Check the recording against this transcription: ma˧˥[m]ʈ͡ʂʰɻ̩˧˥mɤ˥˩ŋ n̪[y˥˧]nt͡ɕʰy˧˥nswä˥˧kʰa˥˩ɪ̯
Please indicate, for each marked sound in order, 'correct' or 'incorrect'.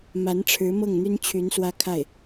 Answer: incorrect, incorrect

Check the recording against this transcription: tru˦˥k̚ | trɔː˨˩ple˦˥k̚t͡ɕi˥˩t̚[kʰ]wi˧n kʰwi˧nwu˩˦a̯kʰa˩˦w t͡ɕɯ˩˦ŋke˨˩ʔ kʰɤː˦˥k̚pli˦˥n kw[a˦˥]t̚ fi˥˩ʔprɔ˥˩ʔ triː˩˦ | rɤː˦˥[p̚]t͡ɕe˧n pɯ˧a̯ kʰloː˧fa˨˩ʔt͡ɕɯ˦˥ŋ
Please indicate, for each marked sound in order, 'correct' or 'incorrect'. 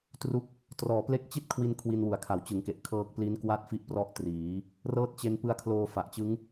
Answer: correct, correct, incorrect

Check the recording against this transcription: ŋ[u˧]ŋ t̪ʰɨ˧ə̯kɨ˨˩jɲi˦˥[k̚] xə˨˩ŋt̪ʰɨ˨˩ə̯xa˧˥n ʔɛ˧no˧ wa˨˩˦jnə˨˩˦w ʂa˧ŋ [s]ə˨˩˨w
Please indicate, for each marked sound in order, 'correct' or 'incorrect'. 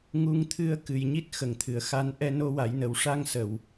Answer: correct, incorrect, correct

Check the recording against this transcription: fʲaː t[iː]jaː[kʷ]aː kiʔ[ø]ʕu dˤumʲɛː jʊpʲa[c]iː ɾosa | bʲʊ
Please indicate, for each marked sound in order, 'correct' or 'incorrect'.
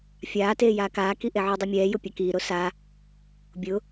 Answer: incorrect, incorrect, incorrect, incorrect

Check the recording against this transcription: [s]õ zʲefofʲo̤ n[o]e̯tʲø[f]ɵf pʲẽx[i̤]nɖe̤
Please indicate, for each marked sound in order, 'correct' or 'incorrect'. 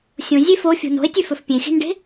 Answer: incorrect, incorrect, correct, correct

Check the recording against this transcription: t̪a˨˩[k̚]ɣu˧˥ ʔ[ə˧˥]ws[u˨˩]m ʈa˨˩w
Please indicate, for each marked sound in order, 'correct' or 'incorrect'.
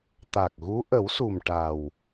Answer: correct, incorrect, correct

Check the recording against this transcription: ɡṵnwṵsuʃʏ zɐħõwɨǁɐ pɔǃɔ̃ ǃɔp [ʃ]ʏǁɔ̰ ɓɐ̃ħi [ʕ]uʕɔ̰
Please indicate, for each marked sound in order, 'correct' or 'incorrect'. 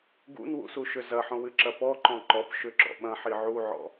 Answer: correct, correct

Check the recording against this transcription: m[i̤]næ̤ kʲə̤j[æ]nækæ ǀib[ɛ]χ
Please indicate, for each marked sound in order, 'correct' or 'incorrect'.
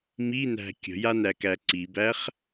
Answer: incorrect, incorrect, incorrect

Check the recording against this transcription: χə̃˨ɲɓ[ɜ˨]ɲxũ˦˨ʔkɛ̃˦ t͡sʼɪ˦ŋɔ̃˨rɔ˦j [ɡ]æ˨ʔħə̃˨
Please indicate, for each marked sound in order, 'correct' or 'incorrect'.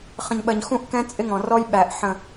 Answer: correct, incorrect

